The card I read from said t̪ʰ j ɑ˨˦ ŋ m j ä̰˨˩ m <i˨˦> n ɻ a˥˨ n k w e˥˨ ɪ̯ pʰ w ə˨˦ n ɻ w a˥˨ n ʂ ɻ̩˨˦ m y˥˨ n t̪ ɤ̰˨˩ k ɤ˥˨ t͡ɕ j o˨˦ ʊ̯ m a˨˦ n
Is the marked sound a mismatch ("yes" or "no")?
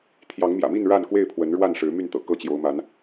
yes